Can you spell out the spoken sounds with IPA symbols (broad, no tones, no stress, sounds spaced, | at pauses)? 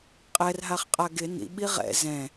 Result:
qʼ ɛ r ɦ a χ qʼ a ɡ ɪ n ḭ ɓ i ʁ ɛ̰ z ɛ̃